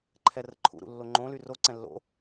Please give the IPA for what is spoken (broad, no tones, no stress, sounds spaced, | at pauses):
ǃʰ ɛ r ə̰ ǃʰ ṵ ɾ ṵ lː o ŋ͡ǃ õ l y r o ǀ ɛ̃ lː o̰